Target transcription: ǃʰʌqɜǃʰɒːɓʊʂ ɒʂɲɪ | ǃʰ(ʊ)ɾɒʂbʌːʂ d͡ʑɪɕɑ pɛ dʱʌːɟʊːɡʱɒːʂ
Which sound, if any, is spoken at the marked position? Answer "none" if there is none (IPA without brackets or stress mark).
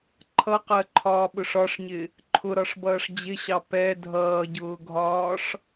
ʊ